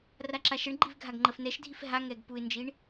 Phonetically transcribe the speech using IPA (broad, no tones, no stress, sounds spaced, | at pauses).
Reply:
r a ǁ a ʃ ə ɳ ɡ͡ǃ i v ɡʱ a ɡ ŋ͡ǃ ə f n ɛ ʃ dʱ i f ɦ a ŋ ɛ ɡ p u ɪ̯ n d͡ʒ i ɳ